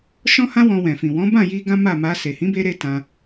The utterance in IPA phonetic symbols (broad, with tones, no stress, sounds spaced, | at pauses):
ʃ ɔ̃˦ h ã˦ w ɔ̃˧ w ɛ̃˨ f ĩ˨ w ɔ̃˨˦ b ã˦˨ j i˧ ɡ ã˦ m a˦˨ m a˧ s e˨ h ĩ˨˦ b e˧ ɾ e˦ t ã˧